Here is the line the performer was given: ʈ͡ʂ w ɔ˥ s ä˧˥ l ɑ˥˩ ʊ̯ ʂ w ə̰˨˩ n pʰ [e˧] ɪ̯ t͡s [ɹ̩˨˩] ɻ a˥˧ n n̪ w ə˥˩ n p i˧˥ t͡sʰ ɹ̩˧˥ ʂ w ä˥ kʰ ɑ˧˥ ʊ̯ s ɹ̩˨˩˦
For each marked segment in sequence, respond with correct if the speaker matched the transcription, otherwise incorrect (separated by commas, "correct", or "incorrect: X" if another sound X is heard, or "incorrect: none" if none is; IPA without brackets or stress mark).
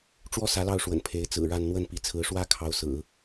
incorrect: e˧˥, correct